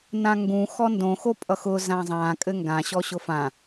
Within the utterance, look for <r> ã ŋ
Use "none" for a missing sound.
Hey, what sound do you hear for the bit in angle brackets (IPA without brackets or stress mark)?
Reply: n